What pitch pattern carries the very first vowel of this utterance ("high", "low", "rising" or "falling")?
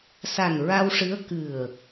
low